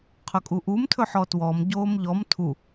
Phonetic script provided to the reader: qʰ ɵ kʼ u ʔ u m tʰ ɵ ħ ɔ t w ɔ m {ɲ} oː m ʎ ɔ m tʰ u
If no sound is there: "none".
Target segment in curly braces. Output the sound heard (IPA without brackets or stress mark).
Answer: ɟ